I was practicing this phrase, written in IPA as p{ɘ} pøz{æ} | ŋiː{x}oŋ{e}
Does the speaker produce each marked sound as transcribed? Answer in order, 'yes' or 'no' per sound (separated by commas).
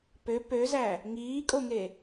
no, yes, no, yes